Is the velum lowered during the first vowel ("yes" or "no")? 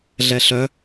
no